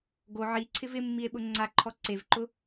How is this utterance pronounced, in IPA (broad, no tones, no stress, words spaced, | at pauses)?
ɡo ʕiǀʰɪv ɪmːie̯ɓʊ ŋ͡ǀaǃʰɔ ǀevǃʊ